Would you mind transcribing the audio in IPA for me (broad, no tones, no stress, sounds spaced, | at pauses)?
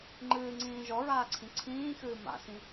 ŋ͡ǃ ɨː ŋ͡ǀ ĩː ʒ ɔ ɹ aː ǀʰ ĩ ǀʰ ĩː x ɨː m a̰ s ĩ